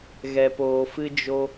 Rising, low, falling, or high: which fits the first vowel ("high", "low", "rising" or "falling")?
low